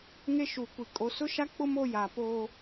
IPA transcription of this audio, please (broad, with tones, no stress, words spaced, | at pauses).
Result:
ŋe˦ʃu˨kʷi˨ kʼo˨sʊ˦ʃa˦k͡pʊ˦m o˦ja˨poː˦